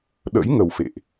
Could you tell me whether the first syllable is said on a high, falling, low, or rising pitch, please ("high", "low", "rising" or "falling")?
rising